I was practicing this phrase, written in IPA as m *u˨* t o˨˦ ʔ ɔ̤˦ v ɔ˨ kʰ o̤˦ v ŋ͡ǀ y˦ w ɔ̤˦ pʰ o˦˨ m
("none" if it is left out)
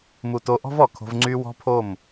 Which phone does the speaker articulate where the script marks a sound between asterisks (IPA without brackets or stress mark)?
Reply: u˨